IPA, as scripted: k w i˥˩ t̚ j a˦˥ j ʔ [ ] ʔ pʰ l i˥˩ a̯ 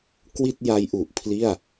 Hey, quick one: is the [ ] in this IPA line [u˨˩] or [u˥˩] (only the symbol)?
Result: u˨˩